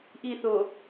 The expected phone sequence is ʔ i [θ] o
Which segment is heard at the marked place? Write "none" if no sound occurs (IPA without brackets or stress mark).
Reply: θ